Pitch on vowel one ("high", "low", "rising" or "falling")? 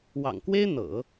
low